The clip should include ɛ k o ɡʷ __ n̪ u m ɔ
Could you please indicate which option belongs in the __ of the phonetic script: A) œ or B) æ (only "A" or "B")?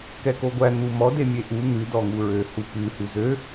B